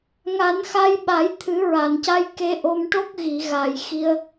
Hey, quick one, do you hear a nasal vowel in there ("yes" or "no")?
no